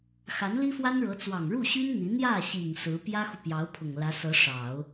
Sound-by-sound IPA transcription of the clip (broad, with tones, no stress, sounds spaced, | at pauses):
x a˧˥ n l i˥ f w a˥ n ɻ ɤ˧˥ t͡s w ɑ˨˩ ŋ ɻ u˥˩ ɕ y˥ n n̪ i˧˥ n̪ j ä˥˩ ɕ i˨˩ ŋ s ɹ̩˧˥ p j ä˥ x u˨ p j ɑ˧˥ ʊ̯ pʰ ʊ˨˩ ŋ l ä˧˥ s ɤ˧˥ ʂ ɑ˨˩˦ ʊ̯